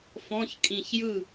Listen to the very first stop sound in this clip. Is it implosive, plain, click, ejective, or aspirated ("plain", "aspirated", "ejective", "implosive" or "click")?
ejective